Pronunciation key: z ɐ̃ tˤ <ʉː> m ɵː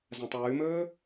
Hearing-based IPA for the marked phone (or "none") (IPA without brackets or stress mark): ʉː